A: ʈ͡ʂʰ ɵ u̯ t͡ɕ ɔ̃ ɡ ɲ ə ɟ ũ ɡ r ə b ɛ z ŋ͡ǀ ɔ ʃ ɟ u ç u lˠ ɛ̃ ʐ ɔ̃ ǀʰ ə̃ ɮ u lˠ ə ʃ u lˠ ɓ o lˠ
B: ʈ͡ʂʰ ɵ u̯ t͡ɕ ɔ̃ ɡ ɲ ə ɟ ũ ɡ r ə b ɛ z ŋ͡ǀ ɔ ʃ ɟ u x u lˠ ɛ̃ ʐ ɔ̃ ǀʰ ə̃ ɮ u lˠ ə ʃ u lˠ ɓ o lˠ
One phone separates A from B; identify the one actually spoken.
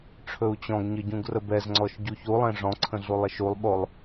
A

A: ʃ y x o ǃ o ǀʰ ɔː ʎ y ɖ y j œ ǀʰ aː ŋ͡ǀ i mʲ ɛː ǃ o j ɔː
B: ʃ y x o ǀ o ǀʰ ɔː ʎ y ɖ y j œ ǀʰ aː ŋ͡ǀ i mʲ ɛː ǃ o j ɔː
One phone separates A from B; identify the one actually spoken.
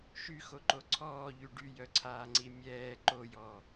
A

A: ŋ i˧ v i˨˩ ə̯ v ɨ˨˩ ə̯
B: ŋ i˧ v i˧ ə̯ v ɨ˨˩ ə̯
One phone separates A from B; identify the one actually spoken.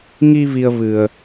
B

